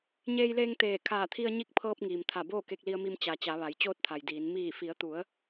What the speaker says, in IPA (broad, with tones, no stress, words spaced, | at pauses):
ɲeː˧jleː˧ŋ t̪eː˧˩ kʰaː˧˩t̪ʰi˧ə̯ɲi˧˥k̚pʰɤː˧p̚ ŋiː˩m t̪ʰa˧˩ boː˥˨ke˧k̚li˧ə̯mi˧m t͡ɕa˩˧ t͡ɕa˩˧ʋa˩˧j t͡ɕoː˥˨t̚t̪ʰa˩jdiː˩˧n miː˧˩fi˩˧ə̯t̪u˩˧ə̯